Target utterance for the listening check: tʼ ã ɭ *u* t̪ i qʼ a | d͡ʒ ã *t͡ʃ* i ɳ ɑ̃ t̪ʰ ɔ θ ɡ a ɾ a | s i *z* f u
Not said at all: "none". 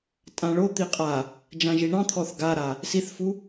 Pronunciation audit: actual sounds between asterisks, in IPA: o, ʒ, θ

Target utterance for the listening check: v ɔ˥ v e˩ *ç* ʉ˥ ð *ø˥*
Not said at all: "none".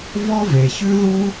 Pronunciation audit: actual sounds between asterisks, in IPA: ç, u˥

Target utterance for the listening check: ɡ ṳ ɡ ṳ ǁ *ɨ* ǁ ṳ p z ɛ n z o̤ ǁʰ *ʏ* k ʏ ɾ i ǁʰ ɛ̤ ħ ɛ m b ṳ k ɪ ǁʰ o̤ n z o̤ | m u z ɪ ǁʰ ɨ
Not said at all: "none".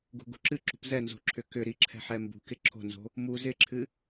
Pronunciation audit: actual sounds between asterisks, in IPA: ɨ, ʏ

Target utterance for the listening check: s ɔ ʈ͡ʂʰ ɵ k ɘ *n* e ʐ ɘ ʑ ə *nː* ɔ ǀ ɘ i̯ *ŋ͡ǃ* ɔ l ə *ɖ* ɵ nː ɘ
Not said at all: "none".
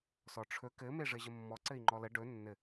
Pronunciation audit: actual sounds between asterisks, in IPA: m, mː, ŋ͡ǃ, ɖ

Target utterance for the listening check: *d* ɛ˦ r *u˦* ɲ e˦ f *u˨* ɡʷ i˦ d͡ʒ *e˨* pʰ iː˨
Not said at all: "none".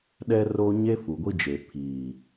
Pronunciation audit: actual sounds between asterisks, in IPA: ɗ, o˦, u˨, e˨

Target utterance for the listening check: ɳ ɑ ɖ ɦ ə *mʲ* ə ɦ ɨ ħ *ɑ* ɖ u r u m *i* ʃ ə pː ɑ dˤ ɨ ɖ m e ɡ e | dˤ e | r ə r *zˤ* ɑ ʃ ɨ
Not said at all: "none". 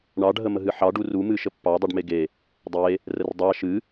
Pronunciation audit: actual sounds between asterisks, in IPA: m, ɑ, ɨ, dˤ

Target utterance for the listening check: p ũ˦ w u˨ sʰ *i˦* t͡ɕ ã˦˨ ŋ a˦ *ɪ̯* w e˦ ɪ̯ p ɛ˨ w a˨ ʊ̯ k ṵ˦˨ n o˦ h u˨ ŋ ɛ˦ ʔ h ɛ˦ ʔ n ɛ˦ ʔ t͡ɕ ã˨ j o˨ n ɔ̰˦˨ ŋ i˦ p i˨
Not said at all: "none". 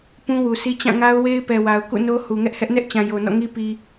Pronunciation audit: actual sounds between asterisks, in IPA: i˦, ʊ̯

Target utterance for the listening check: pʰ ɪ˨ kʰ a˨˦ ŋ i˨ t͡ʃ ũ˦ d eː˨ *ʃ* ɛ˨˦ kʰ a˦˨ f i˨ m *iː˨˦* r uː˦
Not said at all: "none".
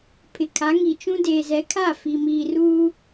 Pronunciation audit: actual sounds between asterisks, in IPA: z, iː˨

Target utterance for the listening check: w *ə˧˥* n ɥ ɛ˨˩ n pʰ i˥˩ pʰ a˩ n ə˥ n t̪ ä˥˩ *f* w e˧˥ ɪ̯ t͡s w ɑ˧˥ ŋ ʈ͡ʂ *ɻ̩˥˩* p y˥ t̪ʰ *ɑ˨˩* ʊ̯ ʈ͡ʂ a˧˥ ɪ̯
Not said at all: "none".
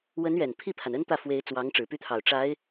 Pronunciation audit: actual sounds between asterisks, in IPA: ə˧˥, f, ɻ̩˨˩, ɑ˨˩

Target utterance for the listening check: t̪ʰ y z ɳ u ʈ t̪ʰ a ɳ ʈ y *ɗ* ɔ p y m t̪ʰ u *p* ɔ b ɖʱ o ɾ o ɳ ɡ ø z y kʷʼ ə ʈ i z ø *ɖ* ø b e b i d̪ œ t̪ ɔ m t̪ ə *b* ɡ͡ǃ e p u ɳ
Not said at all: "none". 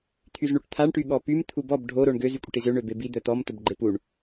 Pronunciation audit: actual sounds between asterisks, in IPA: ɠ, b, ɳ, b

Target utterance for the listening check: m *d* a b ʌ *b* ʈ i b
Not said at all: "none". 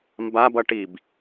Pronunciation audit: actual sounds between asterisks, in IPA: b, none

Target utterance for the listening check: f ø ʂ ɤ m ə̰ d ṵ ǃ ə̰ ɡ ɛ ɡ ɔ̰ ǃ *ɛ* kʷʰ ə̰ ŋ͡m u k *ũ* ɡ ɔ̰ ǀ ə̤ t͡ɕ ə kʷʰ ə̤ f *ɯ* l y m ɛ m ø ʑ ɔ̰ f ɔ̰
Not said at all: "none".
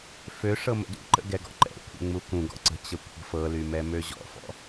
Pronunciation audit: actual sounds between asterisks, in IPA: ɛ̰, ũ, ɤ

